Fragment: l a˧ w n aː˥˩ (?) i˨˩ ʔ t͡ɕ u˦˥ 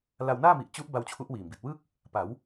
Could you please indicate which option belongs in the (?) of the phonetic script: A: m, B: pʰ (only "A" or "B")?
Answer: A